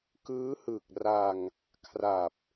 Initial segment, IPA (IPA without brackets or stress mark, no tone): k